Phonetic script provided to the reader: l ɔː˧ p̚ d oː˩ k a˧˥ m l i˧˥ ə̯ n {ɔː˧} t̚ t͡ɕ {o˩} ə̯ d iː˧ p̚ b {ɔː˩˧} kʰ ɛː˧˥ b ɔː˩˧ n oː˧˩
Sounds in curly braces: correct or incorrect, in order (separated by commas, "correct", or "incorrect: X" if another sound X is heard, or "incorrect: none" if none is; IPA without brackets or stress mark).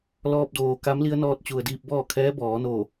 correct, incorrect: u˩, incorrect: ɔː˥˨